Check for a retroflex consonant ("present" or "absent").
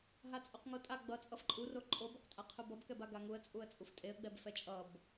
absent